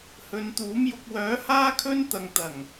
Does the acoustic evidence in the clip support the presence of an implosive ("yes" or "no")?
no